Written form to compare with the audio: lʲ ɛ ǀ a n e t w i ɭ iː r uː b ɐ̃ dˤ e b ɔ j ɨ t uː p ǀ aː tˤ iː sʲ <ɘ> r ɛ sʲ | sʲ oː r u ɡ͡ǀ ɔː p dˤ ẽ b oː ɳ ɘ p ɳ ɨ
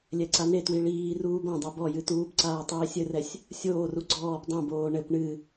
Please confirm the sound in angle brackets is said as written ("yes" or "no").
yes